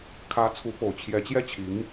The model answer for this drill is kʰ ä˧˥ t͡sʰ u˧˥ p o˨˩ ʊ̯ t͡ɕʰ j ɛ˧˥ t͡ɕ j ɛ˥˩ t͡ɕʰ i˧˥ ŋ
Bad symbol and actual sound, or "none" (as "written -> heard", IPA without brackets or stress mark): none